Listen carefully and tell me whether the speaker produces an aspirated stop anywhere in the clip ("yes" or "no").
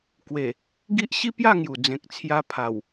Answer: yes